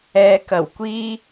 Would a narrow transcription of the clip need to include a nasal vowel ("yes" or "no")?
no